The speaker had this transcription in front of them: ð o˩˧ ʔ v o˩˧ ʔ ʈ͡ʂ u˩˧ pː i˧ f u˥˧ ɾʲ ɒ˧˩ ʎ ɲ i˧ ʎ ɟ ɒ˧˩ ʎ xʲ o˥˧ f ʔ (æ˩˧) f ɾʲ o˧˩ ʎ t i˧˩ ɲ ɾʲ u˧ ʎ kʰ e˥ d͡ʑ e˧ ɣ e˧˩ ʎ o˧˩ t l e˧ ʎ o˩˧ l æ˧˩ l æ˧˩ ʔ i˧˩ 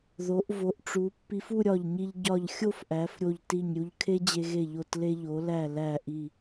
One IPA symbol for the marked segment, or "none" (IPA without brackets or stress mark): æ˩˧